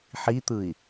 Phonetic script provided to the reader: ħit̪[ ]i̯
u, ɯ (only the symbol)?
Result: ɯ